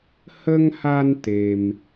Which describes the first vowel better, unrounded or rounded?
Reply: unrounded